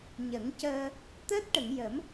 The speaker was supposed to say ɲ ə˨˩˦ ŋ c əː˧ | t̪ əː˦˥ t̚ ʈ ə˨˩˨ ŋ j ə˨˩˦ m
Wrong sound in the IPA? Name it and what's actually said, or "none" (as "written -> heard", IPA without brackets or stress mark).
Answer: none